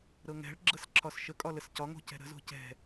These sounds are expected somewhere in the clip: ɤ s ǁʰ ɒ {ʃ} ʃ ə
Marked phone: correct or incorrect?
incorrect